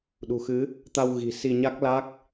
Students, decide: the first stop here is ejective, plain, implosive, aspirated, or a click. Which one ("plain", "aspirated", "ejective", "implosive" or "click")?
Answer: implosive